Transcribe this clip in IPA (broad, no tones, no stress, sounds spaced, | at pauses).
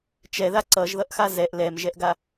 t͡ʃ ɛ ð a ǀ ʌ ʒ ð ʌ ʔ x a z ɛ ʔ l ɛ m ʒ ɛ ʔ ɡ a